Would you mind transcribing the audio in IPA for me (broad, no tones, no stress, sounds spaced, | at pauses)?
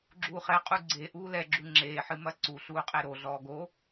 ɡ͡ǁ uː χ ɛ qʼ u ɡ͡ǀ e ʔ uː l ɛ ɡ͡ǁ u ŋ͡ǁ eː ħ ɨ m ɐ ǀ u ɬ uː qʼ e ɾ o ɮ ɔː ɡ o